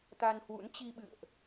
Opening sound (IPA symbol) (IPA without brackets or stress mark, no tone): t̪